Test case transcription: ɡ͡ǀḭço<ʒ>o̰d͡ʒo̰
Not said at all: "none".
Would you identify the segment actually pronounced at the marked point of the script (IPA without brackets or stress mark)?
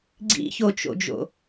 t͡ʃ